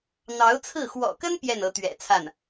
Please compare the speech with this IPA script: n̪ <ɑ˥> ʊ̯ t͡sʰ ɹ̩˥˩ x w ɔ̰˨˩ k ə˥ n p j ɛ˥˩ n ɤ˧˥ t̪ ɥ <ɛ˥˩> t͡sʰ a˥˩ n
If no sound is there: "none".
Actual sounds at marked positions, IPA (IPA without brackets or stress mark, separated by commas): ɑ˧˥, ɛ̰˨˩